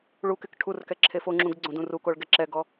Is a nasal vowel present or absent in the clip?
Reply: present